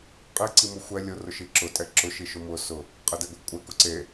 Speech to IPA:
qʼ i ǀ i m ʊ xʷ ɛ lʲ ʊ r ʊ ʃ i ǁ ʊ tʼ ɛ ǁ ʊ ʃ i ʃ ʊ m ʊ s ʊ | qʼ e d ɛ ɡʷ e kʷʼ ɛ k ʊ ǀ e

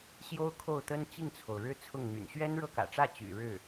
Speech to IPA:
ɕ j o˥ ʊ̯ kʰ o˥˩ ʊ̯ t̪ ə˥ n t͡ɕ i˥˩ ŋ t͡sʰ o˩ ʊ̯ ɻ ɻ̩˥ t͡sʰ ʊ˥˩ ŋ n̪ y̰˨˩ n ɕ ɥ ɛ˥ n ɻ ɤ˥˩ k ä̰˨˩ ʈ͡ʂ ä˥˩ t͡ɕ y̰˨˩ ɻ ɻ̩˥˩

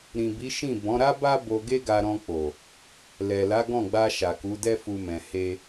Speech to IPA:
ɾ ĩ˨ b i˨˦ ʃ ĩ˦˨ b ɔ̃˨˦ ɾ a˦ b a˦ b o˧ ɡ e˦ ɡ a˧ ɾ ɔ̃˧ k͡p o˨ | l ɛ˨ l a˨˦ ɡ ɔ̃˦˨ ɡ͡b a˧ ʃ a˨ k u˨˦ d ɛ˦ f u˧ m ɛ̃˨ h e˧

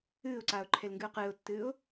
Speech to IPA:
ɨː ʊ̯ ǀ aː ʊ̯ ǃʰ e l ŋ ɡ ɨ ʊ̯ q ɨː ʊ̯ tː ɨː ʊ̯

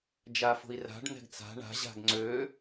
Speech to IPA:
d͡ʒ a f o̤ i̯ r a̤ ɖ n̪ ɛ̤ ɡ t͡s a̤ ɳ a̤ ʑ a̤ ɡ ŋ͡ǀ ø

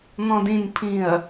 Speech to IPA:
n̪ ɔ̃ d ĩ n pʰ ĩ ɐ̯

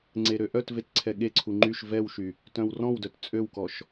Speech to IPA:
ŋ͡ǀ e ɾ ø ʔ œ t v e t ǀʰ ɛ ɠ e ǀʰ u ŋ͡ǃ y ʃ v ɛ w ʃ y | t œ̃ w r ɔ̃ w d œ t t͡sʼ ø w k ɔ ʃ

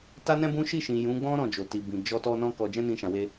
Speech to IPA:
t a˦ n ɛ̃˦ b ũ˦ ʃ i˦˨ ʃ ĩ˨ j ũ˨˦ ɡ͡b ɔ̃˦ ɾ ɔ̃˦˨ d͡ʒ o˨ t i˨ b ĩ˨ d͡ʒ ɔ˧ t ɔ˧ n ɔ̃˦ k ɔ˧ d͡ʒ ɛ̃˦ n ĩ˧ ʃ ã˨ w e˧

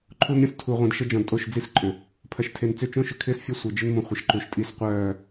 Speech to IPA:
ǃʰ u˦ n ɾʲ õ˦ s tʰ u˨ ʁʷ ĩ˨ d ʃ ə˦ d͡ʒ ɔ̃˨ d tʼ o˦˨ ʃ d͡z i˦ s ǃʼ ʏ˨ | pʰ ɐ˨ ʃ tʰ e˨ n t͡s ʏ˦˨ t͡ʃ õ˦ ʃ ʏ˨ kʰ ɪː˦ s fʲ ɐ˦ sʷ œ˨ d͡ʒ ɪ˦ n m ũ˨ χʷ ə˨ ʃ ǃ u˨ ʃ tʼ i˦ s qʷ œː˦˨

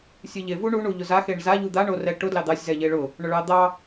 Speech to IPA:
sʲ ɨ ʎ e v u ɳ u ɳ u ʎ ʊ z a x e ɳ z a ʎ u d̪ a ɳ o r ɛ ʈ ʊ d l ɑ d̪ ɑ sʲ z ɛ ʎ e ɭ ʊ | ɳ ʊ ɭ ɑ d̪ ɑ

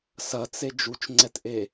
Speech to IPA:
s ɐ t͡s e d͡ʒ u t͡ʃ ŋ͡ǀ ɛ t ʔ e

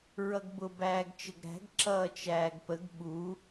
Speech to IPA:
ɹ ʌ ɡ b ʊ b æː ɡ t͡ʃ ə ɡ ɾ æ̤ ɡ ǁ ʌː t͡ʃ æː ɡ p ə ɡ ɓ u

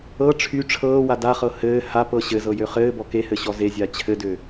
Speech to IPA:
ɤ ʈ͡ʂʰ y ʈ͡ʂʰ ɤː w a d a χ ɤ h ɘː h a p ɤ ɕ ɘ z ɤ j ø χ ɘː b ɔ k e h ɘ ɕ ɔ z e zʲ a t͡ɕʰ ɘ d ø

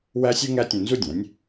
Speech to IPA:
w æ˥ sʲ u˥ ŋ æ˥ tʲ õ˧ n z u˥ dʲ æ̃˩˥ nʲ

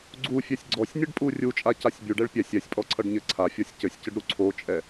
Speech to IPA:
ɡ͡ǀ u fʲ ɛ sʲ ɡ͡ǀ ɔ sʲ nʲ ɘ ɖ pʼ u rʲ u t͡ʃʼ a c a sʲ bʲ u ɖ ɛ ɭ pʲ ɛ sʲ ɛ sʲ pʼ ɔ ǀʰ ʌ ɖ ɲ ɘ ǀʰ a fʲ ɔ sʲ c ɘ sʲ c ɘ ɖ ɾ u ǀʰ o t͡ʃʼ ɛ

